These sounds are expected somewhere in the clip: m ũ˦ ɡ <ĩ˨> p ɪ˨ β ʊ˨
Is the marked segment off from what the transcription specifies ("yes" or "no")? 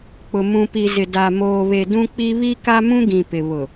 no